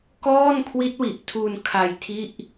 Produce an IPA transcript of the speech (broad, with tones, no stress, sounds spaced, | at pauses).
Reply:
k ɔː˥˩ n kʰ w i˦˥ t̚ w i˨˩ ʔ tʰ u˧ n kʰ a˧ j tʰ i˥˩ ʔ